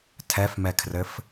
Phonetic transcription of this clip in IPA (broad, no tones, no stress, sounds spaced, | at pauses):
tʰ ɛ f m ɛ kʰ r ɘ f